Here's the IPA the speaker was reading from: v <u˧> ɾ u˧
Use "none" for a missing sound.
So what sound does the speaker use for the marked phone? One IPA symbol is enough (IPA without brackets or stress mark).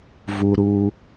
u˧